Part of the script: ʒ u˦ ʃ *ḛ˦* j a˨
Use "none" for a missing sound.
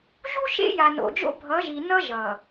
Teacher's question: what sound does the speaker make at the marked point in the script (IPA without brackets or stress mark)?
ḛ˦